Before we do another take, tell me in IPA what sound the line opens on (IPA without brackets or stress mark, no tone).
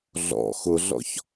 ɮ